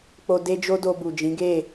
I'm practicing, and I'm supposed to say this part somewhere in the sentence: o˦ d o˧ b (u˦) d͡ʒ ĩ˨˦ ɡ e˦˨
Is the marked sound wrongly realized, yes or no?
yes